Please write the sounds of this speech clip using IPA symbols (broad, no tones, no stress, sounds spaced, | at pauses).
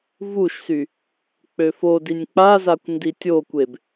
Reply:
v u ʃ s y | k͡p ø f o d i nʲ k͡p a z a kʷ n d i tʲ o kʷ e b